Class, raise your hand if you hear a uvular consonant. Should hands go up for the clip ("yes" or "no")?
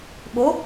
no